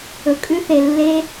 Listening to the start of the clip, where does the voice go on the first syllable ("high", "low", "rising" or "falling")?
low